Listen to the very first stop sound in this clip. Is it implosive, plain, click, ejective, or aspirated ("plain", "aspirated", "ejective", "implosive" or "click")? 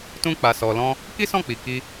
plain